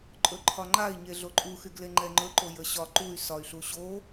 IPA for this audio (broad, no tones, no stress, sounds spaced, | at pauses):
ǃʼ ɵ ǃʰ ɒ ŋ͡ǃ a i̯ ɲ e ɮ o ǃʼ u x y ɡ l e ŋ͡ǃ ɛ ŋ͡ǃ ɵ ǃ o j ə ɕ ɒ ǃ u y̯ s ɒ y̯ ɬ u ɕ o